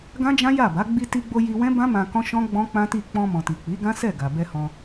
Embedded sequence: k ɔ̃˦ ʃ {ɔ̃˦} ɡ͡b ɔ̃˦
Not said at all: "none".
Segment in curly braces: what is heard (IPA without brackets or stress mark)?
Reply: ɔ̃˦